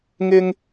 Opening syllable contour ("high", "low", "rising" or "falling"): high